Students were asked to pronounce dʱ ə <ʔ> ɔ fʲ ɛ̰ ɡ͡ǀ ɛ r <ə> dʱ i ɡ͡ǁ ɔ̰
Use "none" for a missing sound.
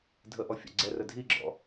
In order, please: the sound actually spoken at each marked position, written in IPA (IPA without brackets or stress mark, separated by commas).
ʔ, ə